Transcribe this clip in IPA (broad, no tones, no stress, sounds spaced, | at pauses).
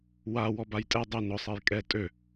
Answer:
w a w ɔ b a j tʼ ɛ dˤ ʊ n ʊ sˤ ɛ j kʼ ɛ tʼ ø